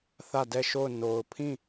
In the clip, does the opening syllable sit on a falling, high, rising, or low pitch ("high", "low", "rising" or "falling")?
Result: falling